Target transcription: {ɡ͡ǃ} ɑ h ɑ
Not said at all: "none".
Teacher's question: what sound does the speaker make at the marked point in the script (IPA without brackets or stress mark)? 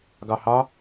ɡ